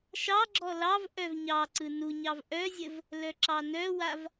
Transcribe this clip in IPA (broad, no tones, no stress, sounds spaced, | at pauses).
ʃ ɑ ɡ͡ǁ ɔ l ɑ v ʔ œ v ɲ ɑ ǀ ɯ n u ɲ ɑ v ʔ œ zʲ ə v | l œ ǁ ɑ n œ w a v